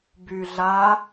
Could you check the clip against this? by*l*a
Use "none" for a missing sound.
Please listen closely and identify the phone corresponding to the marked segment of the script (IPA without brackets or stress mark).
ɮ